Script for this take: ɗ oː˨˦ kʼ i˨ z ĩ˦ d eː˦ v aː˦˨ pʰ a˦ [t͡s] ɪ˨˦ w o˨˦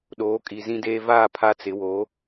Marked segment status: correct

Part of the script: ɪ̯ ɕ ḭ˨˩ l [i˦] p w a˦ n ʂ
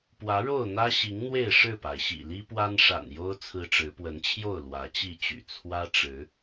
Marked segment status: correct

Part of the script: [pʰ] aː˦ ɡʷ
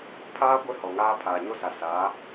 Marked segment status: correct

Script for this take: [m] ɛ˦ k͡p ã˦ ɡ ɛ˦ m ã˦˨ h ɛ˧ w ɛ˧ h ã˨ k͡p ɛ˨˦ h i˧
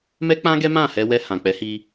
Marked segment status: correct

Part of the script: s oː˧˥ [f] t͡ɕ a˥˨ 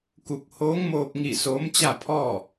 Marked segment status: incorrect: m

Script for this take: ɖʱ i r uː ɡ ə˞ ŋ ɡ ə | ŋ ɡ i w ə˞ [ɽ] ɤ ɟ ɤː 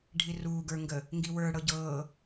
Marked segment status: correct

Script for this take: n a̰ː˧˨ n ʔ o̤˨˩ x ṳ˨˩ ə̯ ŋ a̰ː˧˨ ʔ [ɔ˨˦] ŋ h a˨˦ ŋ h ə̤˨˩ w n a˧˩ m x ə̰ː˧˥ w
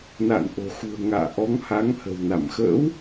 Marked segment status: correct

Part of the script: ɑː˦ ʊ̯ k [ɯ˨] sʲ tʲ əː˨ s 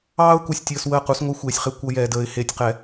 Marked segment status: incorrect: u˨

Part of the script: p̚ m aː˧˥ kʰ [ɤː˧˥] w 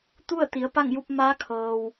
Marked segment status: incorrect: ɤː˩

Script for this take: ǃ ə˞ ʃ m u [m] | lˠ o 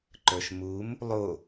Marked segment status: correct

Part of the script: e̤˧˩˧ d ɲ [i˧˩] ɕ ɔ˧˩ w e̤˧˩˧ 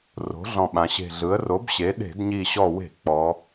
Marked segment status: correct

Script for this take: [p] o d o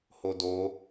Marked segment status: incorrect: h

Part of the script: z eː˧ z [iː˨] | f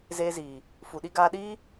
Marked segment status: correct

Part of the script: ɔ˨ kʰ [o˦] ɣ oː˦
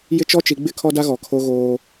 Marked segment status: correct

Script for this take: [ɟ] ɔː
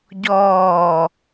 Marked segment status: correct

